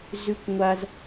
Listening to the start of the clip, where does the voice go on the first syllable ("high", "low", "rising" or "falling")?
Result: high